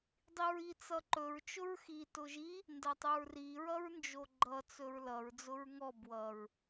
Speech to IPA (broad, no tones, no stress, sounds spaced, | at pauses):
dˤ i ɹ i t͡s ʌ ǃ ɵ ɹ t͡ʃ ʊ ɹ x i t ʊ ʒ i | n d ɐ tˤ ɵ ɹ r i ɹ ʌ ɹ n d͡ʒ o ɡ͡ǃ ʌ t͡s ɵ ɹ l ʌ ɹ d͡z ʊ ɹ ŋ ɔ b w ʌ ɹ